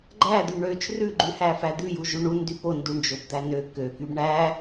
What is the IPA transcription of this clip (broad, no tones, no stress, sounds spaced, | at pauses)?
ɡ͡ǃ æ d̪ y ɳ ø t͡ʃ r ʉ ɡ͡ǃ ʉ h æ f æ d̪ ʉ j u ʒ ʉ ɳ u n d y p o n d u ɳ d͡ʒ o b d̪ æ n ø k ø k y b ɳ æ